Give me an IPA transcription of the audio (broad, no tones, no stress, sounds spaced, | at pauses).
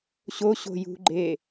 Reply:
ɕ o ɕ o̤ j ṳ ɡ͡ǃ e